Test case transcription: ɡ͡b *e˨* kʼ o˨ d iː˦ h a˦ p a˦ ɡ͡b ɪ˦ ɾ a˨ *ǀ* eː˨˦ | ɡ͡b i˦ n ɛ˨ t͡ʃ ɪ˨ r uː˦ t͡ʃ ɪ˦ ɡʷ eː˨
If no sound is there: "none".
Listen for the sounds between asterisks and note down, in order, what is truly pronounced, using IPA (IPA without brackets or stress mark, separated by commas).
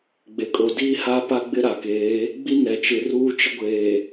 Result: e˨, k